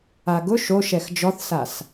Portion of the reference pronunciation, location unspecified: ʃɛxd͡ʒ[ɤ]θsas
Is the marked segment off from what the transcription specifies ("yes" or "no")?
yes